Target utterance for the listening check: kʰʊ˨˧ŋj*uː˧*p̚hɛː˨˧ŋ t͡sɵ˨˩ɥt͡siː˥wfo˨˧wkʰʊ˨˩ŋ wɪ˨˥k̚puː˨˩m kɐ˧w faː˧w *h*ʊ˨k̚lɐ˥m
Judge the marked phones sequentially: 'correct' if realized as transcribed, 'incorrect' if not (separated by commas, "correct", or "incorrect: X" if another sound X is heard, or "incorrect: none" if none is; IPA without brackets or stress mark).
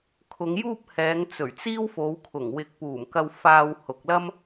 incorrect: uː˥, correct